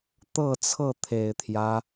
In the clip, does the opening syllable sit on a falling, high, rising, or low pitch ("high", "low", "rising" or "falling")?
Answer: falling